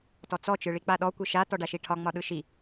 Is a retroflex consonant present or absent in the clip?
present